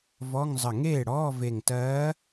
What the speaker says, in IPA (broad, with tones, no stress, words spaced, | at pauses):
vɔ˧˥˧ŋ zˤə˧˩ŋeː˥˩ ɽɔː˧˥˧ve˧˩ŋtɜː˧˥